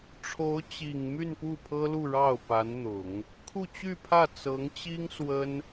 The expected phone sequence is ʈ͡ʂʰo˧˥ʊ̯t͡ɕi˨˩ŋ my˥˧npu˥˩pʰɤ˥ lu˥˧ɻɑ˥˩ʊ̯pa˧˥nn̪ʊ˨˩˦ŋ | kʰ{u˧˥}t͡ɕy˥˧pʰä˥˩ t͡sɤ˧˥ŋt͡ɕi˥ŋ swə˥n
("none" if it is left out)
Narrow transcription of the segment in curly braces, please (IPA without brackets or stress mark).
u˥˧